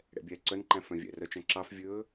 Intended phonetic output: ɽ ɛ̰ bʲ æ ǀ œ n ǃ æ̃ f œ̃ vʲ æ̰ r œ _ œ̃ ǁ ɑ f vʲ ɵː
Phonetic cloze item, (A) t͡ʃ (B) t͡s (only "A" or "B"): A